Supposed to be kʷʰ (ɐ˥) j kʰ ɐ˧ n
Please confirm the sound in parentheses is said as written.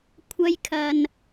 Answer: yes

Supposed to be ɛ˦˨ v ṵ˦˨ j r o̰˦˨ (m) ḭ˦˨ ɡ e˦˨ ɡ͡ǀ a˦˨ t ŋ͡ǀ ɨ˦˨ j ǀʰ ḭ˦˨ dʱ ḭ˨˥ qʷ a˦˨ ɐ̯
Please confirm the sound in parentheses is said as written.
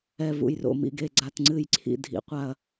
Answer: yes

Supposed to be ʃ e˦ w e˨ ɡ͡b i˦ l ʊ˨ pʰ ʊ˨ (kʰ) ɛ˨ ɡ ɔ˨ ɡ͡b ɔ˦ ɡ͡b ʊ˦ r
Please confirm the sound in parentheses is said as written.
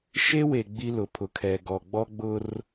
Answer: yes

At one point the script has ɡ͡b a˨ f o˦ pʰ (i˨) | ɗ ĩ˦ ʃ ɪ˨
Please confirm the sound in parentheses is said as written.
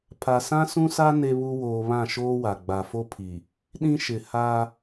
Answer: yes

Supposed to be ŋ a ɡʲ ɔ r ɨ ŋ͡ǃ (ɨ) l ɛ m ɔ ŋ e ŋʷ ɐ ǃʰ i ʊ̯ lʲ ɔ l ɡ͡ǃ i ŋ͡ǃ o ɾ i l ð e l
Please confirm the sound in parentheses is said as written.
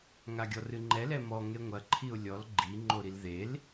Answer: no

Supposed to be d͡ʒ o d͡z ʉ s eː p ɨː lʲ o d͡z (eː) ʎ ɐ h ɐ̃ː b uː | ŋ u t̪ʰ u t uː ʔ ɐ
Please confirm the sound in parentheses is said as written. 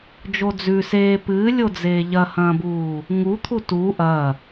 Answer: yes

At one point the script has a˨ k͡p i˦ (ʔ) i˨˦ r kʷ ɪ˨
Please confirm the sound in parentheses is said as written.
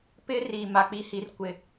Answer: no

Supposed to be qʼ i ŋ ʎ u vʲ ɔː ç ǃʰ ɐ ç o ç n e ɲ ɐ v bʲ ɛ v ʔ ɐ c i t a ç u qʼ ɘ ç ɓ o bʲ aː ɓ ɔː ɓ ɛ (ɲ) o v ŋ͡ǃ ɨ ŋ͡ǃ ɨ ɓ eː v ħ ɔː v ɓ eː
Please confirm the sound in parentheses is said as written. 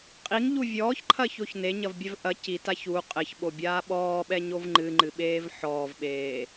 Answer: yes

